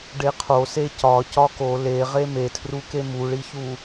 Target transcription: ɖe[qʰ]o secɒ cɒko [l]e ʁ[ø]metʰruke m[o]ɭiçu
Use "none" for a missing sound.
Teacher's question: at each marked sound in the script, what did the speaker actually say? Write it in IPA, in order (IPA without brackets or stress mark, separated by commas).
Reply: qʰ, l, e, u